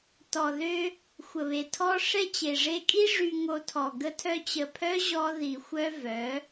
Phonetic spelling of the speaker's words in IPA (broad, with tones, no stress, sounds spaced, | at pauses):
t ɔ˨ ð ø˦ | xʷ ə˨ β e˨ tʰ ɔ˦ ʂ ɛ˦ t͡ɕ e˨ ʐ e˧ kʼ i˦ ʐ y˧ ŋ o˧ tʰ ɔ˨ ɡ ə˧ tʰ œ˧ t͡ɕ ə˨ pʰ œ˦ ʑ ɔ˦ ð i˨ xʷ œ˦ v œ˨˦